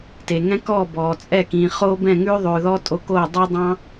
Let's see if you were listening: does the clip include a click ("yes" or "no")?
no